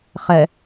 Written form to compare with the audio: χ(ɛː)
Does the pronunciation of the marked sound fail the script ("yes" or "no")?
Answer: yes